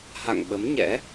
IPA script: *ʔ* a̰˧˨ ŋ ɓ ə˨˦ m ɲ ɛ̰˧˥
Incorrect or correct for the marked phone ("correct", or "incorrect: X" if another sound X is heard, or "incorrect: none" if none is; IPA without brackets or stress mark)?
incorrect: h